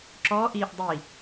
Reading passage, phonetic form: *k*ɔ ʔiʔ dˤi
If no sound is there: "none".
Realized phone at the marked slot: ǁ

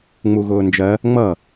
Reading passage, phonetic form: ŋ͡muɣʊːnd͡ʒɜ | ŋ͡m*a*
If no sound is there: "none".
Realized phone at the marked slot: ʌ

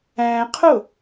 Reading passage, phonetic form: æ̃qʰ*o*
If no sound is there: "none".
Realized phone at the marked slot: o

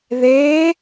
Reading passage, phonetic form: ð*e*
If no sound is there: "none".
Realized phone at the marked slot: e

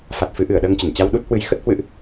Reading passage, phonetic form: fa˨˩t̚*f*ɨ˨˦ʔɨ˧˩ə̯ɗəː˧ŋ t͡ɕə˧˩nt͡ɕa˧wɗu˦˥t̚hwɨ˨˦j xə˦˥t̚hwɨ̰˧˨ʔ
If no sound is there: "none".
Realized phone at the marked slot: f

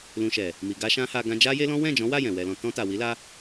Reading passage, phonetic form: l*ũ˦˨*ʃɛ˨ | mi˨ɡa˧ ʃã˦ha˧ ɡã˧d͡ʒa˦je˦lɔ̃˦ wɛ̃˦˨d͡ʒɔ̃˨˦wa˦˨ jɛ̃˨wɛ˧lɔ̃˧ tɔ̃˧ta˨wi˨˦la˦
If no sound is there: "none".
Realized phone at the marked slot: ũ˨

